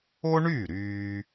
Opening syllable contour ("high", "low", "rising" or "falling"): high